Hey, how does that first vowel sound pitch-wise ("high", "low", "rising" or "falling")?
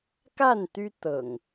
falling